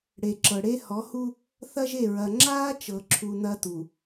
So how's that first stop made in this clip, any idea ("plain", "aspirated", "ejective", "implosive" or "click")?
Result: click